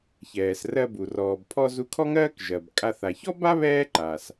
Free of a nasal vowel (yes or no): yes